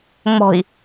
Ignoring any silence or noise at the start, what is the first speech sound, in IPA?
ŋ͡m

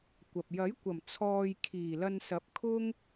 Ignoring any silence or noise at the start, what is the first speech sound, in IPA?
kʷ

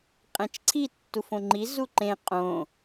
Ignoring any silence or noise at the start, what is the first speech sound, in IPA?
qʼ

